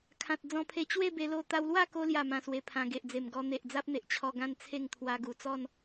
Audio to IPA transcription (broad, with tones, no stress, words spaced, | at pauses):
kʰã˨t̚ d͡zɔ̃˧pʰe˧ t͡ɕwe˥˧be˧lo˧ t̪a˧wlwa˥˧ko˧ lja˥˧mã˧swe˧pʰã˧ ɡe˨ʔd͡ze˨˩mɡɔ˧ n̪e˨ʔd͡za˦p̚n̪e˨ʔt͡ɕʰɔ˧ ɡã˥˧nt͡sʰe˥˧ŋ t̪ʰwa˧ɡu˨˩ t͡sɔ˥˧n